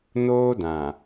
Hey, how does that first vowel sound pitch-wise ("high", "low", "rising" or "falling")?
high